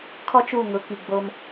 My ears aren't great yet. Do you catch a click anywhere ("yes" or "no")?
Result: no